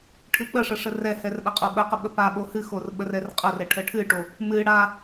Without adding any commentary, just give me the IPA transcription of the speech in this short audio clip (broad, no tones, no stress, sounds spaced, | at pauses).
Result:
ʈʰ ɨ k͡p ə ʂ ə ʂ ə r ɛ h ɛ r ɗ a qʼ o ɓ ə q ə ɓ ə p a ɓ o h ɨ x o r ɓ ə r ɛ r qʼ ə r ɛ ʈʰ ə ʈʰ ɨ ʈ o | m ɨ ɽ a